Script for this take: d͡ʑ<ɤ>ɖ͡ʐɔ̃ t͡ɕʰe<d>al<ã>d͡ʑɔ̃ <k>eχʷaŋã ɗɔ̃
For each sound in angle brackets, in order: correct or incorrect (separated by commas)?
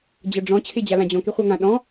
correct, incorrect, correct, correct